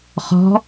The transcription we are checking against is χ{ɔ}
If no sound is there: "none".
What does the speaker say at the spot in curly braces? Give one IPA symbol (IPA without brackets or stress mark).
ɔ̤